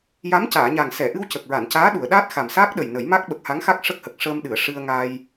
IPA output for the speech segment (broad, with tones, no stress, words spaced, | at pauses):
ja˧˥mcaː˨˩˨ɲa˨˩ŋ sɛ˨˩˨ ʔɨ˧wcə˨˩k̚ɹa˨˩˨ncaː˧˥ ɗu˨˩˨ə̯ɗaː˦˥t̚ xa˨˩msaː˦˥k̚ɗə˨˩j nə˨˩˦jma˦˥k̚ ɓə˨˩k̚ha˧˥ŋxa˦˥k̚ ʂə˦˥k̚hə˨˩k̚ ʂəː˧mɗɨ˨˩˨ə̯ ʂɨ˧ə̯ŋa˧j